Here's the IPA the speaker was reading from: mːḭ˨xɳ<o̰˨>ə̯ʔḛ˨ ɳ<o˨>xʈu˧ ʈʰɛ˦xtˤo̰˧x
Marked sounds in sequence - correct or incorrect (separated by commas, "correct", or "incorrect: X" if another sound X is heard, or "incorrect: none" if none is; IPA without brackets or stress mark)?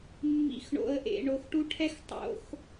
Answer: correct, correct